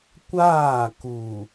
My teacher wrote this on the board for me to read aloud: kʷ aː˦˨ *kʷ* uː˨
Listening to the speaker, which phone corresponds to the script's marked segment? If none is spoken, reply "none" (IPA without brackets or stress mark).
k